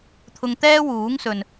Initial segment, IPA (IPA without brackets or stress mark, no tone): t̪ʰ